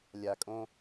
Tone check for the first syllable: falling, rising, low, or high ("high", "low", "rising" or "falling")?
low